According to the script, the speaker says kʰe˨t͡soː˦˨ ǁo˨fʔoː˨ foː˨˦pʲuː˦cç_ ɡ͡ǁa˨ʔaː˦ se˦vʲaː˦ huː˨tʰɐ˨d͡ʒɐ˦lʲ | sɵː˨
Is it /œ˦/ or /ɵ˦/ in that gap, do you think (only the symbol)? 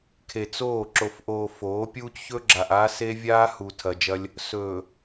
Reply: ɵ˦